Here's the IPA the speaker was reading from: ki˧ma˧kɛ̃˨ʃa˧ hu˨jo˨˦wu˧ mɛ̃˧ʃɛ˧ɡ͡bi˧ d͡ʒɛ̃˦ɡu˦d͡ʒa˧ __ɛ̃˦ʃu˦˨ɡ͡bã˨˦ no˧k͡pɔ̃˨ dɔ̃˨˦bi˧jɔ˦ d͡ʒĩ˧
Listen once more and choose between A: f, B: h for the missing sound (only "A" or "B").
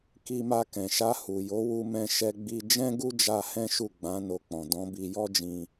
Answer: B